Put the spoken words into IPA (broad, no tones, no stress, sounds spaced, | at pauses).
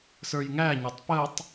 s ə˞ j ŋ æ ɲ ɔ tˤ p ə tˤ